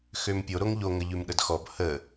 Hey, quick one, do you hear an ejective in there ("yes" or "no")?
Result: no